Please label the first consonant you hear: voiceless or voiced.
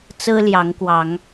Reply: voiceless